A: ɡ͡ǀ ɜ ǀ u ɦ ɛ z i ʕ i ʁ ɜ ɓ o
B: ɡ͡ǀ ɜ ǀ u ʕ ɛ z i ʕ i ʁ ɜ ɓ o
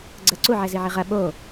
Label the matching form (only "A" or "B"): B